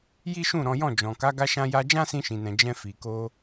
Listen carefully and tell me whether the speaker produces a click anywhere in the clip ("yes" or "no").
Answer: no